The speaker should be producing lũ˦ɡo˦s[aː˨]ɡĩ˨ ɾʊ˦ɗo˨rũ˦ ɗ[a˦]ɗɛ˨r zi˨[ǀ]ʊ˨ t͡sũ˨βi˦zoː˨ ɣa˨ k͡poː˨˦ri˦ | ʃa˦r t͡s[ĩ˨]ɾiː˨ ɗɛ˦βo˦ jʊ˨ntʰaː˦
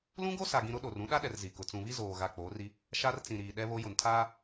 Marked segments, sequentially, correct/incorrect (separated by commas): incorrect, correct, incorrect, correct